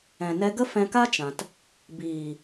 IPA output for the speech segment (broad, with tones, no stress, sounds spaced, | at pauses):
ɛ̃˨ n ɛ˧ ɡ ə˦ f ɛ̃˧ k a˦ t͡ʃ ã˨ t | b iː˨